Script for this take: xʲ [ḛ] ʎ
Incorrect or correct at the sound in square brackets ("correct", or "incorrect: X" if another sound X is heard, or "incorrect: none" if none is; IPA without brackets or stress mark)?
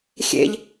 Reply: correct